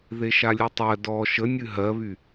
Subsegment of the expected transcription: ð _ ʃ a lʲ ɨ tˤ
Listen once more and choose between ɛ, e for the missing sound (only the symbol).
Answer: e